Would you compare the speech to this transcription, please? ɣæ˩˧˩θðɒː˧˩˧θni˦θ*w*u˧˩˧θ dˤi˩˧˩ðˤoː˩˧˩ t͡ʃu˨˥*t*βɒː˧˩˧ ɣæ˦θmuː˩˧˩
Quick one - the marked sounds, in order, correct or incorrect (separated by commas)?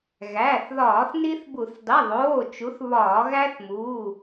incorrect, incorrect